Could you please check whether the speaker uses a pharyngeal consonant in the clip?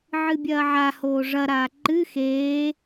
yes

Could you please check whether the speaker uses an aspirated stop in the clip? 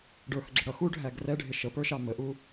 no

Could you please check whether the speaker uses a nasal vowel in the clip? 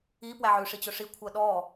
no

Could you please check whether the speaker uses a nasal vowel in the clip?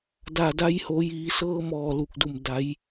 no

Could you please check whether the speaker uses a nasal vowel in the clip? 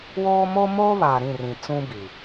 yes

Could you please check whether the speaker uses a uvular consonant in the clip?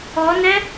no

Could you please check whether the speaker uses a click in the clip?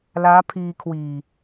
no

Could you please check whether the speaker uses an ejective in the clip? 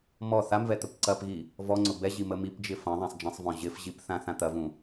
no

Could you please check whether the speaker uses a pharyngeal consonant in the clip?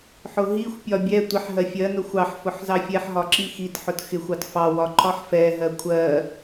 yes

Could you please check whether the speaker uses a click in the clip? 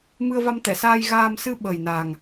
no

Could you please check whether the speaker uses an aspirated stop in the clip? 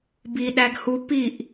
no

